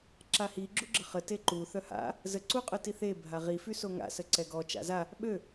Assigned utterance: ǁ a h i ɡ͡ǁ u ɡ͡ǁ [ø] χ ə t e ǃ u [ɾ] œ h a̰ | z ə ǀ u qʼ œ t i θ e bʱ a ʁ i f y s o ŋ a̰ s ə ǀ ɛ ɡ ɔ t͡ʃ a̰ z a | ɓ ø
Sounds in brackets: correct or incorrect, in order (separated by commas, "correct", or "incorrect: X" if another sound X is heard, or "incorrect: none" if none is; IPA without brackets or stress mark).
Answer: incorrect: ə, incorrect: θ